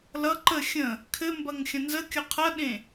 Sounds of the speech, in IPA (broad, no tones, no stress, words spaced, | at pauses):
lʌ ǃə xʲə̃ | kʰɘmbɐŋ xʲɐ̃nzəkʲʌ qʰɐɗẽ